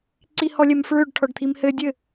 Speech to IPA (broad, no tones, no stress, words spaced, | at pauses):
ǀihɔlʲɛmfɹøɖ ʈʰɔɖt̪ʰimhɘ dʲɘ